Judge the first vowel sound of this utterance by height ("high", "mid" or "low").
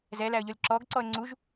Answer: mid